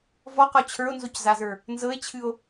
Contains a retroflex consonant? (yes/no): no